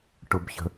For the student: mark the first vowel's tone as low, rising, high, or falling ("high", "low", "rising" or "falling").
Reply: low